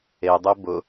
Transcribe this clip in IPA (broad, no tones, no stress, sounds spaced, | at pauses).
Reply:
e dˤ e b ʊ